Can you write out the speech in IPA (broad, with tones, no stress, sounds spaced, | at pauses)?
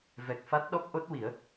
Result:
v ɛ˨˩ k̚ f a˦˥ t̚ ɗ ɔ˦˥ p̚ ʔ o˦˥ t̚ w i˨˩˦ ə̯